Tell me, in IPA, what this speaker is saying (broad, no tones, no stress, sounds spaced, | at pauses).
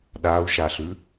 ɗ a u̯ ʃ a ɬ ʉ